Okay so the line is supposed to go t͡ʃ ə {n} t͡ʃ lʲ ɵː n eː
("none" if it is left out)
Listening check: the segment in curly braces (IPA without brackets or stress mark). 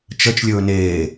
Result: none